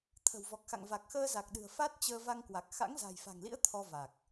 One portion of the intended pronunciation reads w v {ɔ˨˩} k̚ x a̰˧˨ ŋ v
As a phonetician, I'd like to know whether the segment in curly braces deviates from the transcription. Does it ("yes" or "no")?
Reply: no